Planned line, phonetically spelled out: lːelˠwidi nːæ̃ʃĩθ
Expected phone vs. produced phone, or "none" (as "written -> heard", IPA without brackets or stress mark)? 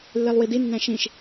θ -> ʃ